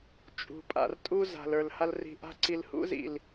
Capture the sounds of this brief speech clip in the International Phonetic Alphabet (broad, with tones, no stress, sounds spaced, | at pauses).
t͡ʃʼ ṳ˨ pʼ a̰˨ r tʼ u˧ z a̤˨ l ə˞˨ l h a˧ l r i̤˨ ʔ a̤˧ ǀ i˨ l h ṵ˧ z ḭ˨ l